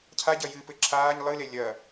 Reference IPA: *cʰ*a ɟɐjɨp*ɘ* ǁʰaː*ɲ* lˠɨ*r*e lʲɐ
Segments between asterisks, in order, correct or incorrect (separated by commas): correct, correct, correct, incorrect